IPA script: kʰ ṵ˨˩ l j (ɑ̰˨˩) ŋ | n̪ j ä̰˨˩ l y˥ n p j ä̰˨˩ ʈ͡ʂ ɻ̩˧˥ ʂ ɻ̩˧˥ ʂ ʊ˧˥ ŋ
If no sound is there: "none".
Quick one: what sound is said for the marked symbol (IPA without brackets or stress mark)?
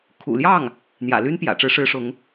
ɑ˥˩